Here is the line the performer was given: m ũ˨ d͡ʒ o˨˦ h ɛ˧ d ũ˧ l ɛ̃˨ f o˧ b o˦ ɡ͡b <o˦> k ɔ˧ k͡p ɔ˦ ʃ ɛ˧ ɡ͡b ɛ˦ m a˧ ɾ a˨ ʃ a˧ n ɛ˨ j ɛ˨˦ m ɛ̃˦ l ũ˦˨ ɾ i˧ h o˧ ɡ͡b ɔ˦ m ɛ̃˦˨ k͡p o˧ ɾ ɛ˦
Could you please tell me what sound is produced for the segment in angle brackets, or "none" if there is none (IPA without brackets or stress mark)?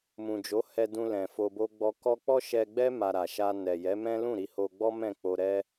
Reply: ɔ˦